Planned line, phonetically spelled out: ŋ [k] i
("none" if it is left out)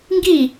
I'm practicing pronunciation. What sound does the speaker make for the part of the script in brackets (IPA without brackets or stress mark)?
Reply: ɡ